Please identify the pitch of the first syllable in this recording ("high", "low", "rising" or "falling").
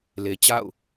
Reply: low